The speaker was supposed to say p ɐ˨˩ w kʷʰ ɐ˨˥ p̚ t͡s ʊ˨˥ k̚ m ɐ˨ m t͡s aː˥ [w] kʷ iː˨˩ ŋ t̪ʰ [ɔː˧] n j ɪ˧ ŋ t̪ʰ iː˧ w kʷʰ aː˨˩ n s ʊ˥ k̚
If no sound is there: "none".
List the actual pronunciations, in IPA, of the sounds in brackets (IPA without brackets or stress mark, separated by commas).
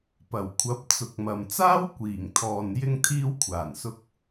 w, ɔː˨